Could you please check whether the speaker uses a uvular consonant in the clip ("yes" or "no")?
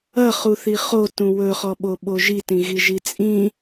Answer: yes